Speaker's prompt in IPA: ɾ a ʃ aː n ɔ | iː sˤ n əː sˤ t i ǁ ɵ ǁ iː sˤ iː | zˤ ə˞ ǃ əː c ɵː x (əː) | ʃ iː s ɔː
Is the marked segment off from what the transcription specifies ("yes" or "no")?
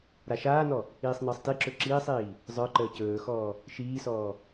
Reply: yes